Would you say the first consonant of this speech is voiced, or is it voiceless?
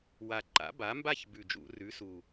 voiced